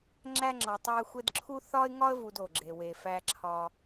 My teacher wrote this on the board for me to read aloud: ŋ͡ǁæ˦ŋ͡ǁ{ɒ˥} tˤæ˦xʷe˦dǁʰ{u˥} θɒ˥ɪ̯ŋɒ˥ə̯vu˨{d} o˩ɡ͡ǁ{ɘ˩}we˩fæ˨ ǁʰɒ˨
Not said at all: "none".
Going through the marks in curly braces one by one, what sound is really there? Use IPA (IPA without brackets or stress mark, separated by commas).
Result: ɒ˨, u˥, d, e˩